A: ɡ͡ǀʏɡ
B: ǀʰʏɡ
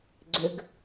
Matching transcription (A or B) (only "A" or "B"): A